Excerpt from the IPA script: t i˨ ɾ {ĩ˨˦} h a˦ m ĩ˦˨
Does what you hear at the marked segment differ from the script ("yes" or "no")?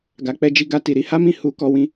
yes